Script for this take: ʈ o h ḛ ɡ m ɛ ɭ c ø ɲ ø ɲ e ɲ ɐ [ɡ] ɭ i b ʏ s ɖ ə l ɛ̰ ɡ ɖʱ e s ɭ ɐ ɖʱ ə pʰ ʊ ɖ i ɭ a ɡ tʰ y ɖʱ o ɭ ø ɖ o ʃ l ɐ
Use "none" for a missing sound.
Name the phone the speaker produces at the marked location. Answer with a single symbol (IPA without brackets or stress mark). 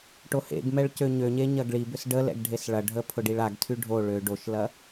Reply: ɡ